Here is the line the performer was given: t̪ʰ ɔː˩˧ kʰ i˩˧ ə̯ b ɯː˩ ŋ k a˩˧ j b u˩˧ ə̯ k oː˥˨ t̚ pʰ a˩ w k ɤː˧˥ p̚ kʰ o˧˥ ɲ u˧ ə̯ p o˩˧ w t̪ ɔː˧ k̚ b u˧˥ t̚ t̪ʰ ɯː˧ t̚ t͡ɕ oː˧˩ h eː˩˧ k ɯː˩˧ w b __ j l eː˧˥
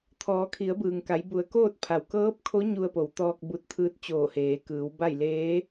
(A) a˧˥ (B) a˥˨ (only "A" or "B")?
B